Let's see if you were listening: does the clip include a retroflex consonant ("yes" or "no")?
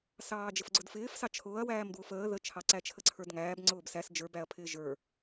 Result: no